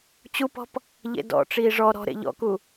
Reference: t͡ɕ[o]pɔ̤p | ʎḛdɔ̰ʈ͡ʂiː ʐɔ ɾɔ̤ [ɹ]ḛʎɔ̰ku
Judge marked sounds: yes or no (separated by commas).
no, no